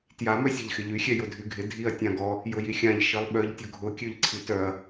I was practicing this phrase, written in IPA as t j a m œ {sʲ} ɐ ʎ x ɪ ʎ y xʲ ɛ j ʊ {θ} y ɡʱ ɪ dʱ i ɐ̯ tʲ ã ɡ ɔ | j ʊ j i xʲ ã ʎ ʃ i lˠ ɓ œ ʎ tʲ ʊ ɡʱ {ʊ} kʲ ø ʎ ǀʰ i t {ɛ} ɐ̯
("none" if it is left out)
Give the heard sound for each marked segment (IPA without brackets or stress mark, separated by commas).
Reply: sʲ, dʱ, ʊ, œ